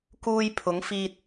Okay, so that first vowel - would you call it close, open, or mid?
close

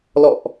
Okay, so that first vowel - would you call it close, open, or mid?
mid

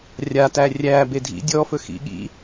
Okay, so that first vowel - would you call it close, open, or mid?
open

